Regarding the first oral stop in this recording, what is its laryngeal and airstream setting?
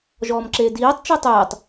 click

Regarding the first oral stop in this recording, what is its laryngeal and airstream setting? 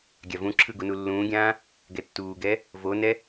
plain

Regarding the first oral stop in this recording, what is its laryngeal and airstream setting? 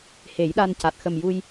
implosive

